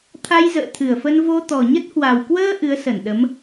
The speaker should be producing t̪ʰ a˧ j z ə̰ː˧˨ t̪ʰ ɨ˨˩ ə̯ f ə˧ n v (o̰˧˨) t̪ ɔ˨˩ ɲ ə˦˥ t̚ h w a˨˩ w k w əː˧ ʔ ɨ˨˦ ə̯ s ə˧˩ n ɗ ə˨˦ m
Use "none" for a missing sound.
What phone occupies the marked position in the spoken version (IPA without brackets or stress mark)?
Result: o˧